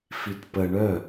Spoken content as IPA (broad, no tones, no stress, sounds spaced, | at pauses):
f i t p ə ɳ œ